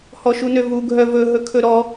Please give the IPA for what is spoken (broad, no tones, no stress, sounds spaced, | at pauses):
h ɔ ʃ u n ø v u ɡʱ œ v ɵ ɦ ɵ kʰ ɵ ɾ ɔ